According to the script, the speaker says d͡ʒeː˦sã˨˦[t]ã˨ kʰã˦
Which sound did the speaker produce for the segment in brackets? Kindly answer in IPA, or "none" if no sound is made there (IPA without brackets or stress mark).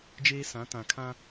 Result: t